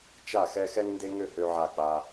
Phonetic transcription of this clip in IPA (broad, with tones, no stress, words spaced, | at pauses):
t͡ʃa˦˨xɛ˦ xɛ˦ŋnde˦ŋø˦˨ hø˦ʕa˦˨k͡pa˦